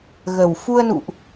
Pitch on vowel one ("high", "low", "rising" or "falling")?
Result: low